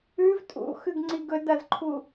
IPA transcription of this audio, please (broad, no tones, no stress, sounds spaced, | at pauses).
ʉ v tʼ ṵ x ʉ ɡ ŋ͡ǀ i ɡ ɵ d ɐ z ǃʰ u